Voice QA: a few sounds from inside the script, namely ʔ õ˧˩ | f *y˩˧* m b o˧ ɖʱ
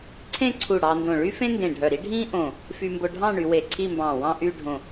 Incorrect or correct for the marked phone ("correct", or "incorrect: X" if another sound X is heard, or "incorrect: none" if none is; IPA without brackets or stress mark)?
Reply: incorrect: y˧